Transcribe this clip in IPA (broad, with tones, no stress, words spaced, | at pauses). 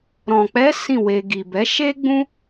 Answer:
ɾɔ̃˨k͡pɛ˨˦ sĩ˦˨ we˧ ɡi˨bɛ˨˦ ʃe˦ɡ͡bũ˦